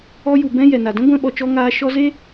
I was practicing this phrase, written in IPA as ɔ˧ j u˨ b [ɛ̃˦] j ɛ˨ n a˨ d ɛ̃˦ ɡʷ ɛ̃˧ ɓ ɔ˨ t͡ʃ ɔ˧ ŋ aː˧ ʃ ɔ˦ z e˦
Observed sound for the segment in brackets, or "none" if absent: ɛ̃˧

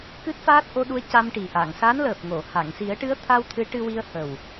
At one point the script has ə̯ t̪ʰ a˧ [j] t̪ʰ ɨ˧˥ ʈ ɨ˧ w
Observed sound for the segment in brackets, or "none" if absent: w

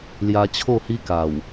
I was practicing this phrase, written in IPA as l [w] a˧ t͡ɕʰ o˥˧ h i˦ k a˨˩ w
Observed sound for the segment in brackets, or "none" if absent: j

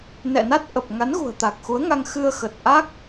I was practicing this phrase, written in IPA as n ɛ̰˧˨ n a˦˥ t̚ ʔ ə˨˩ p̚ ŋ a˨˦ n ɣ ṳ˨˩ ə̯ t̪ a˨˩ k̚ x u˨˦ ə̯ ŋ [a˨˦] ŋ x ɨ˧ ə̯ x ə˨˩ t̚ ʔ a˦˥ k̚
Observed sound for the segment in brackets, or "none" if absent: a˧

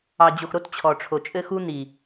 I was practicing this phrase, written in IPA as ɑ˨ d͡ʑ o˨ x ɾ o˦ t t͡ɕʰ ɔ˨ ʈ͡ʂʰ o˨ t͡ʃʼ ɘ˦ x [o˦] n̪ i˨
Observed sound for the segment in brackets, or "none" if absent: u˦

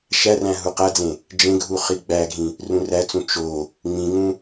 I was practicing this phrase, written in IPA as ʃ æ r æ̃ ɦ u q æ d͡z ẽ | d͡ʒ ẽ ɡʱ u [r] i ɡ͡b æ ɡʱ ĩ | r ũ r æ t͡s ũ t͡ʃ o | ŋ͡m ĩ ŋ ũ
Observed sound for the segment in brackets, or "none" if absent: χ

